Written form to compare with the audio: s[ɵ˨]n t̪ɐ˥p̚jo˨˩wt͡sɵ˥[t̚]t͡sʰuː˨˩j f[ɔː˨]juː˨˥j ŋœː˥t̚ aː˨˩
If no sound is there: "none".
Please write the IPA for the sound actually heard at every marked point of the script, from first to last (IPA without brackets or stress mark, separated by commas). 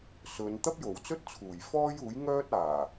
ɵ˨˧, t̚, ɔː˥